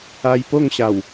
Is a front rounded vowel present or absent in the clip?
absent